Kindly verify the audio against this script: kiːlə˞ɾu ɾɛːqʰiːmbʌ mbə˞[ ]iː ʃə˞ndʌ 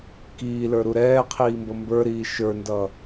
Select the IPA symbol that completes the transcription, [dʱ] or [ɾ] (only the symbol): ɾ